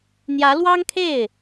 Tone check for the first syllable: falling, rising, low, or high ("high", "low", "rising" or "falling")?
rising